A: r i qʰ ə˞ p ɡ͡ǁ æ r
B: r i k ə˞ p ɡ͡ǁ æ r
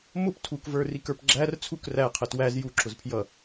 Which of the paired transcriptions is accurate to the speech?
B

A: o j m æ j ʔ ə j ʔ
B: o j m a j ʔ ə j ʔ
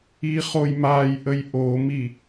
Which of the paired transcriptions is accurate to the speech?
B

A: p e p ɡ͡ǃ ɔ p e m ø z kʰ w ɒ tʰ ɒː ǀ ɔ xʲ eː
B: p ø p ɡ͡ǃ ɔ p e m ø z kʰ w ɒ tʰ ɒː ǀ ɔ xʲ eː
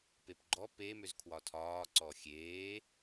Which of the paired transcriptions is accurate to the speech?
A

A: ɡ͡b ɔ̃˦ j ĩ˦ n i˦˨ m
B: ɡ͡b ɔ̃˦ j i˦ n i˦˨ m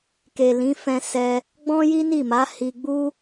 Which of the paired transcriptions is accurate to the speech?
B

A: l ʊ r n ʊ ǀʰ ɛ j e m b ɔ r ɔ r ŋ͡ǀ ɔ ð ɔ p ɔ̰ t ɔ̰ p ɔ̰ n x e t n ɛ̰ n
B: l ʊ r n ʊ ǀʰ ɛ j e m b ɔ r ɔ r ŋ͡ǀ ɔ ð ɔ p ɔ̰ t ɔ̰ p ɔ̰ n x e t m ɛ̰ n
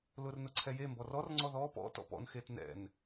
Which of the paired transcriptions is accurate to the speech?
A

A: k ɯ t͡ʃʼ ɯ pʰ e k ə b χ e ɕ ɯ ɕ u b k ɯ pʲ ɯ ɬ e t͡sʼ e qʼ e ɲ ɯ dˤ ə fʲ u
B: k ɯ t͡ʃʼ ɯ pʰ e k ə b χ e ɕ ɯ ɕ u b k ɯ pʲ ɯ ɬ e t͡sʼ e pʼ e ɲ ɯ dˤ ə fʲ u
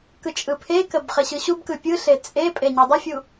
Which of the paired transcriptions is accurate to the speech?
B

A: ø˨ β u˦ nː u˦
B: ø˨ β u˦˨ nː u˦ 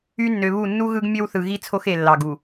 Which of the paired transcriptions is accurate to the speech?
B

